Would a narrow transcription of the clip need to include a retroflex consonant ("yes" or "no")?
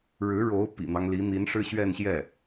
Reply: yes